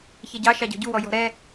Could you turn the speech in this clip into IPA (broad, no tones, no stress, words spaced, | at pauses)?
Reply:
çɛɟɑ ʃɑɟɔ̤ɟuwɔ jɔ̤ɾɛ